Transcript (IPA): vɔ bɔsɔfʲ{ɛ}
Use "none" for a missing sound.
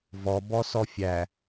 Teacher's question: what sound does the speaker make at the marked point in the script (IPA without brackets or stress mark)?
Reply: æ